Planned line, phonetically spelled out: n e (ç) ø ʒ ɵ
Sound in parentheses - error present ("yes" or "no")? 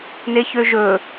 no